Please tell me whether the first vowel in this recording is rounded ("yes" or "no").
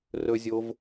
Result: yes